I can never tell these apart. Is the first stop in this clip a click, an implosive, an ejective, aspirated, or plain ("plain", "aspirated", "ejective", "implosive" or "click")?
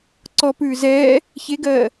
click